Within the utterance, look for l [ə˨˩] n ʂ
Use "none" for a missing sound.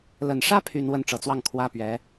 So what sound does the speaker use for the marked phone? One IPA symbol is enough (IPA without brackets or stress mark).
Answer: ə˨˩